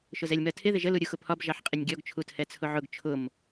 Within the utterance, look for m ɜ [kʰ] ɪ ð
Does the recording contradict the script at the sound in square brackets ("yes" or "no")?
yes